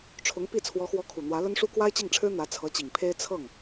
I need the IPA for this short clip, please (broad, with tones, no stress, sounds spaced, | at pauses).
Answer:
ʈ͡ʂʰ ʊ˧˥ ŋ p i˥˩ t͡sʰ w ɔ˧˥ x w ɔ˧˥ kʰ u˨˩ n̪ w ä˧˥ l ə˥ n ʂ u˥ k w a˥ ɪ̯ t͡ɕ i˥˩ ŋ ʈ͡ʂʰ ɻ̩˥ n̪ ä˧˥ t͡sʰ ɤ˧˥ t͡ɕ i˨˩ ŋ pʰ e˥ ɪ̯ t͡sʰ ɤ˥˩ ŋ